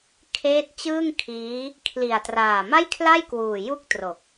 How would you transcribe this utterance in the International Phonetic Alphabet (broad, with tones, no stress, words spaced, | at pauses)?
kʰeː˦˥t̚t͡ɕɯː˥˩ŋkʰiː˦˥ | kʰli˨˩a̯traː˨˩ ma˥˩jkʰla˥˩jkwuː˨˩ ju˥˩k̚tro˨˩k̚